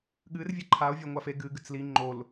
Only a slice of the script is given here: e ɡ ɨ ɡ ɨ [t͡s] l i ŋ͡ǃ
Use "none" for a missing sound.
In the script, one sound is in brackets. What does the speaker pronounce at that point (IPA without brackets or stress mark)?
t͡s